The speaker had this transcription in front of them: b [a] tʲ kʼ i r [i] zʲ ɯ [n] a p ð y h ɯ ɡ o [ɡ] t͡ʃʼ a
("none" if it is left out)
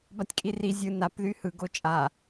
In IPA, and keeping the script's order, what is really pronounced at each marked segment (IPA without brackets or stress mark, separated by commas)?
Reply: a, i, n, none